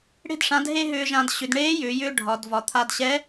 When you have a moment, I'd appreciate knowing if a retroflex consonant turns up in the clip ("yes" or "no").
yes